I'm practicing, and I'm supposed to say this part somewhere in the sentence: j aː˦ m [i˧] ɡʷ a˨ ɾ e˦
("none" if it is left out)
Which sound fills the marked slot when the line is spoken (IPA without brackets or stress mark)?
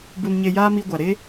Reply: i˧